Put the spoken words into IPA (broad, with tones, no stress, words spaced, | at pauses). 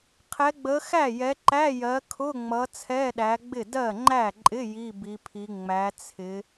qʰɛ˨˦ɡ͡bə˨˦ xæ˥˩jɛ˨˦ǃæ˧˥˧jɜ˨˦ kʰʊ˧˥˧ŋ͡mʌ˨˦ t͡sʰɛ˧˥˧ɗæ˨˦ɡ͡bɪ˥˩ dɜ˥˩ŋ͡ǃæ˥˩ǃʼɪ˧˥˧ ji˧˥˧ bi˨˦pʰi˨˦ ŋ͡mæ˨˦t͡sʰɪ˨˦